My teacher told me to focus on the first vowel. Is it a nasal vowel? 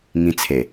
yes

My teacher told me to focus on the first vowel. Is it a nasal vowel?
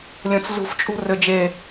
yes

